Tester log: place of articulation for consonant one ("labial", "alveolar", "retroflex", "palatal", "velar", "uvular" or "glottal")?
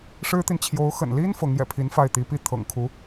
retroflex